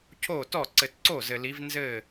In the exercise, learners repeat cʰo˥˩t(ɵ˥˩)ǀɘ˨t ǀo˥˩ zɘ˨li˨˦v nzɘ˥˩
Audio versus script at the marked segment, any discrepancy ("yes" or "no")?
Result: yes